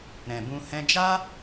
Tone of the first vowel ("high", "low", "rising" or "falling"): low